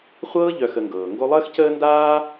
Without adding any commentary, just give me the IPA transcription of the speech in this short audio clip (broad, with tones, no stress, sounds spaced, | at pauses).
χʷ ɤː˦ ʎ œ˨ x ə˨ ŋ ɡ ɤː˩ ŋ ɡ o˦ lˠ əː˥ x c əː˥ n d aː˥